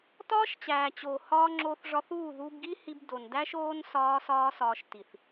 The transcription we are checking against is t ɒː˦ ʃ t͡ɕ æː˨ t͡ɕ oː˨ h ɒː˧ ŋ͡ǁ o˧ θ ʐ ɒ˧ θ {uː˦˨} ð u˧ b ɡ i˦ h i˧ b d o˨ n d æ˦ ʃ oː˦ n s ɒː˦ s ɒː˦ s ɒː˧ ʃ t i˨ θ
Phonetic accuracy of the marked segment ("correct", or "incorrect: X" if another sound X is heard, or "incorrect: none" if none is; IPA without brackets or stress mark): correct